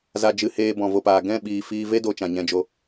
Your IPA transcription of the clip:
za˧d͡ʒɨ˧ heː˧ bɔ̃˨vo˨paː˨ ɡɛ̃˦˨ɓiː˨ fiː˧ ve˦do˧ t͡ʃã˨ɲɛ̃˧d͡ʒo˧

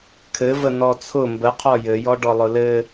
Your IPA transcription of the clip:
kʰɘvə nɔt͡sʰʊ mbəqʰɔ jɘjɔ ɖɔlˠʊlɘ

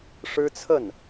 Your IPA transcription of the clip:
ʂɻ̩˥t͡sʰə˥˩n

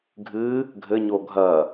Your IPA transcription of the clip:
ɡʱɨ | ɡʱɘɲo ɡʱɐ

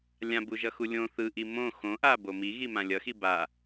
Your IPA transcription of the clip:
lʲãbuʒʌxu lʲõ θɯʔi mõ xõʔabo miɣimã lʲʌxi ba

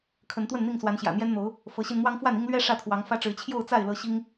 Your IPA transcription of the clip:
kʰə˨˦nt̪wə˥˨nn̪i˥˨ŋswa˨˦n ɕjä̰˨˩n̪jɛ˦nn̪o˨˦ʊ̯ | fɤ˨˦ɕi˧n n̪wɑ˦ŋfwa˥˨ni˦ŋ lɥɛ˦ ʂä˦t̪ʰwɑ˨˦ŋ fä˦ʈ͡ʂɻ̩˨˦ t͡ɕʰjo˥˨ʊ̯t͡sa˥˨ɪ̯ lɤ˦ ɕi˦ŋ

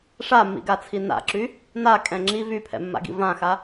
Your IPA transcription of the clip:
ʂamːḭɡat͡sʰi na̰ǁy | nakʼɛ̃ ŋ͡ǁi vypʰɛ̰mːa̰ɡḭ vãxa

